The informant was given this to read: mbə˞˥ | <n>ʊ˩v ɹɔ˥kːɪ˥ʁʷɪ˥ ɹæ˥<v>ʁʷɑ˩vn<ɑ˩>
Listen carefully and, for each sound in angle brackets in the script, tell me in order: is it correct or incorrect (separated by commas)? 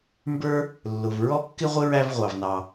incorrect, correct, correct